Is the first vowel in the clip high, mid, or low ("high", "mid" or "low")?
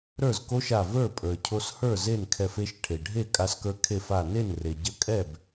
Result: mid